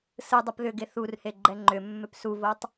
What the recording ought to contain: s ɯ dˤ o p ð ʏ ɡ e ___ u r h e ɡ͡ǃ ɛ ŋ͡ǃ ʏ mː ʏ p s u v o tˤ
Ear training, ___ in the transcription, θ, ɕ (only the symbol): θ